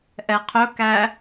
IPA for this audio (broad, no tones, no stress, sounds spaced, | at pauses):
ʔ ɛ qʰ ɵ k æ